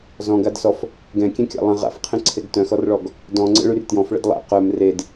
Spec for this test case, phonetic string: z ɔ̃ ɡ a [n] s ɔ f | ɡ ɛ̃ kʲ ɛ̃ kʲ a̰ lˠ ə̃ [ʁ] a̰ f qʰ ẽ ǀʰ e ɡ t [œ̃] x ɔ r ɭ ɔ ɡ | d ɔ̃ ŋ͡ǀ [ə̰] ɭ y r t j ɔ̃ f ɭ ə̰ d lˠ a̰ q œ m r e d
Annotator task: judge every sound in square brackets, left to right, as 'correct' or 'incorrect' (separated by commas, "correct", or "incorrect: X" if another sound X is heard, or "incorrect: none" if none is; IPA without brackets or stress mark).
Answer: incorrect: d, correct, correct, correct